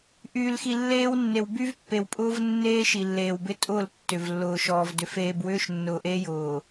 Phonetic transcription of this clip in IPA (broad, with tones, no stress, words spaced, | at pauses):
ʔyː˨lxi˨lːeː˦wnːe˨w by˦vpːe˨wpʼʊː˦v nːeː˦ ʃi˨lːeː˨wbɪ˦ tʼʊː˦˨l tːʏ˨v lːʊː˨ʃɔː˨vdʏ˨ feː˨bwʏː˦ʃ nːʊː˨ʔeː˦jʊː˨